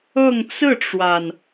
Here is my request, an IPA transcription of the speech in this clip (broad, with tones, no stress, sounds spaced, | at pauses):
ɤ˥˧ ŋ t͡s ɹ̩˥˩ ʈ͡ʂ w a˩ n